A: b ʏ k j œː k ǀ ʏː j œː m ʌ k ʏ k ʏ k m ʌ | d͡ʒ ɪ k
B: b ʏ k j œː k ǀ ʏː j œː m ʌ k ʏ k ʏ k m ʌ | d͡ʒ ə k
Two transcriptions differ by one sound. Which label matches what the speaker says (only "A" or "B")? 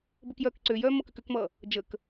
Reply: B